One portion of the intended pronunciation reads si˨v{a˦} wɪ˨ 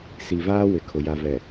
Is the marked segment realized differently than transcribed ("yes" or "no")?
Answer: yes